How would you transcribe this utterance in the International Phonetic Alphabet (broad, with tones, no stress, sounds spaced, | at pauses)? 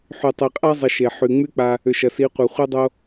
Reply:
ħ y˨ tˤ i˨ qʼ a˦ zˤ ɪ˧ ʃ e˨ ħ y˨ ŋ͡m y˦ k͡p a˧ | ʏ˨ ʃ ɐ˨ s i˨˦ qʷ œ˨ χʷ i˦ dˤ o˦